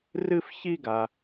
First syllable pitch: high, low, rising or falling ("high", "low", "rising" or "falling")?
high